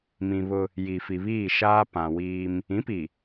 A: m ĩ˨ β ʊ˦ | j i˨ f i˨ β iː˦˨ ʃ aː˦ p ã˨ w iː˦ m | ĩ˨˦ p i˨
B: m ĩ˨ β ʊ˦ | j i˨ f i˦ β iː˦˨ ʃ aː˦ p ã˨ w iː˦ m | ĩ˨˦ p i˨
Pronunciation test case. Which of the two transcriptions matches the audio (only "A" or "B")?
A